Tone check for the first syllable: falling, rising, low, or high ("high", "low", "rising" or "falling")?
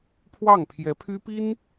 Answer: falling